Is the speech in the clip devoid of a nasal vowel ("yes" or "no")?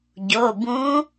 no